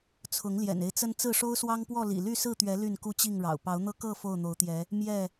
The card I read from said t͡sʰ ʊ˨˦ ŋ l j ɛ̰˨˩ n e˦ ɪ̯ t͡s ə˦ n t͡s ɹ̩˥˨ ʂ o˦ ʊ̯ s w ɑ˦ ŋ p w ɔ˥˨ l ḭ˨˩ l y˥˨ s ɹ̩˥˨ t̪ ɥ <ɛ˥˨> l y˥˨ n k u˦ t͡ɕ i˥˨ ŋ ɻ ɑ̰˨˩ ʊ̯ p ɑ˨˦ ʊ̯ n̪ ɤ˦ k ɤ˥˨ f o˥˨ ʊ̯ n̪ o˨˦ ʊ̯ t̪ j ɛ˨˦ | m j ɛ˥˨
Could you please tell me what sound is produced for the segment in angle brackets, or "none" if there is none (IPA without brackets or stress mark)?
ɛ˨˦